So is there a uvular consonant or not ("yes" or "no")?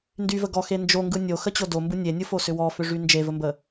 no